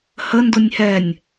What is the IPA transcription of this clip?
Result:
h ə n d ʊ nʲ h ɛ nʲ

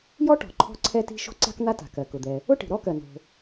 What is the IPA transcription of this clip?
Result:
j ɔ˥ ʈ ɔ̤˩ ǃʰ ɔ̤˥ ǀʰ ɛ˥ t i̤˥ ʃ o̤˥ ǀ a̤˥ k n̪ a˥ t a̤˩ k ɜ˩ k ʊ˩ d̪ ɛ˩ | ʊ˥ ʈ i̤˩ ɾ ɔ˥ k ɜ˩ n o̤˩

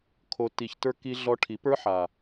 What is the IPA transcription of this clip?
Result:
kʰ o˨ t i˨ ç t ə˞˧ k i˧ ɮ ɔ˧ ʈʰ i˨˦ p ə˞˦ ħ a˨

